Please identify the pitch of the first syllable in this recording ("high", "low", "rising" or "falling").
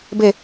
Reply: falling